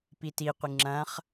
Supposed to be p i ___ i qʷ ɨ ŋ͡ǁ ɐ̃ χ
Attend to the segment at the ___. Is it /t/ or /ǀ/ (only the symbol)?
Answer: t